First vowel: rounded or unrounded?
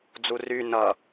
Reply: rounded